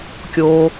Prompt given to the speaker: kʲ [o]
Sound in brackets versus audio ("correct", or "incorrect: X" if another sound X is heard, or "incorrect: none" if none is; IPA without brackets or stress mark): incorrect: oː